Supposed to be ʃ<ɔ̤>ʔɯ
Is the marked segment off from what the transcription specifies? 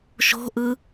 yes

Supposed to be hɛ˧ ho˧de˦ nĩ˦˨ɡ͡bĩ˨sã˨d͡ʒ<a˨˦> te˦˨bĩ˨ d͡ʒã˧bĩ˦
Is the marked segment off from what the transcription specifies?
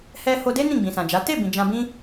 no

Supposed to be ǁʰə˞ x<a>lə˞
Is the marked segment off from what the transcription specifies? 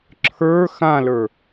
yes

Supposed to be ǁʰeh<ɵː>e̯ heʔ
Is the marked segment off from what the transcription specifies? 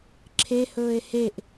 no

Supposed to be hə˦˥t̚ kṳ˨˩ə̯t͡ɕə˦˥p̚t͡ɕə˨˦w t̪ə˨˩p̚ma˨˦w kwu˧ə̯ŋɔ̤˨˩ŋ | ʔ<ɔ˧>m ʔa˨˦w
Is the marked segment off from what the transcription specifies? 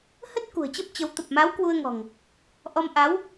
no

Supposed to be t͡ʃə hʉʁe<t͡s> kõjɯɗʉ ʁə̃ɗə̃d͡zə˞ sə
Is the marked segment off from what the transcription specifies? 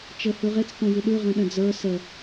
no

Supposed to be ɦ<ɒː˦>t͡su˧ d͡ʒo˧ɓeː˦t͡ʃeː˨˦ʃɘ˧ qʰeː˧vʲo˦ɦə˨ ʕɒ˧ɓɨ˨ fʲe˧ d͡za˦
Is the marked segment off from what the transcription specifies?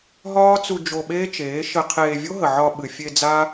no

